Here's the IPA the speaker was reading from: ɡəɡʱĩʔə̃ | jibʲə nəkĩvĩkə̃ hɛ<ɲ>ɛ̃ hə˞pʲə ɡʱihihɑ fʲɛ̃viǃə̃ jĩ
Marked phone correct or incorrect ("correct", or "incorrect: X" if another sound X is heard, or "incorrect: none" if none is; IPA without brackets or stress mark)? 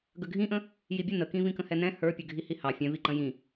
incorrect: n